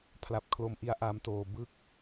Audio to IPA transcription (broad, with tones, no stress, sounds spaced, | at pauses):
pʰ l a˨˩ p̚ kʰ l o˧ m ʔ i˦˥ a̯ ʔ a˦˥ m t oː˧ b ɯ˥˩ k̚